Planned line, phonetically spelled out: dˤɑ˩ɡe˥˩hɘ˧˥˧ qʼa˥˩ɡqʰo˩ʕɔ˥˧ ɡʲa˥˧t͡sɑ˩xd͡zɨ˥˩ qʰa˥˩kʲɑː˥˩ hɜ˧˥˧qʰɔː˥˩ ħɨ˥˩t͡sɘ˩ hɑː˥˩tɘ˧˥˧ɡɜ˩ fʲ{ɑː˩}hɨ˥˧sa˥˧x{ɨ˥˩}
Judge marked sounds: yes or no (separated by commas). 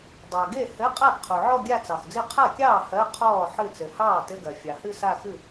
no, yes